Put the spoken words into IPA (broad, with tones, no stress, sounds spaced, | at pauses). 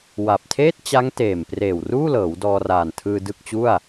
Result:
w a˨˩ p̚ tʰ eː˥˩ t̚ t͡ɕ a˦˥ ŋ t eː˨˩ m p r eː˨˩ w r uː˥˩ l ɤː˩˦ w d ɔː˧ r aː˨˩ n tʰ ɯː˧ d ɯ˥˩ k̚ t͡ɕ u˥˩ a̯